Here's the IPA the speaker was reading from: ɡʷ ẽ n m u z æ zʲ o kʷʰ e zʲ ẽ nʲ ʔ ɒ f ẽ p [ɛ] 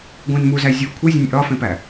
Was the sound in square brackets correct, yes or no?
no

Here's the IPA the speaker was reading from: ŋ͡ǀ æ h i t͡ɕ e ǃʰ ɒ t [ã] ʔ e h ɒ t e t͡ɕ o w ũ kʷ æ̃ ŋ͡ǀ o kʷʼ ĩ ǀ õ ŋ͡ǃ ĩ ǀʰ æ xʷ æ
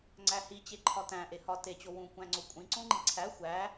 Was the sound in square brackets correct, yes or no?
no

